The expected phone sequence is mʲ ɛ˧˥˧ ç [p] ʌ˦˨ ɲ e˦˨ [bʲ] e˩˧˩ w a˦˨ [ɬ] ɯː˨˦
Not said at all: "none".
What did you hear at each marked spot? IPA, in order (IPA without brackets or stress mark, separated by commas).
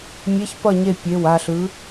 p, pʲ, ɬ